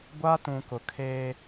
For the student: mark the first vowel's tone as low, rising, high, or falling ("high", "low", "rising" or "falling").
high